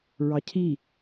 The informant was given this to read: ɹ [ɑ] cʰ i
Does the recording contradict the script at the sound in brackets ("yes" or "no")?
no